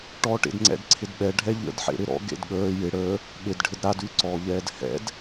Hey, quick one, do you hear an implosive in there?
yes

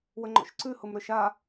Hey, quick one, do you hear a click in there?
yes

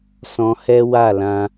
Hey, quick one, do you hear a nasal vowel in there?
yes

